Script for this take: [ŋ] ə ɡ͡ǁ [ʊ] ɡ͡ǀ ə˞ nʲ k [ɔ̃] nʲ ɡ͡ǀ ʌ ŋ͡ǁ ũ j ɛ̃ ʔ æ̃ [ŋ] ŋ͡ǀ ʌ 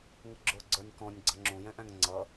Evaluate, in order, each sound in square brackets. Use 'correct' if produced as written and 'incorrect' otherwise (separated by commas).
correct, correct, correct, correct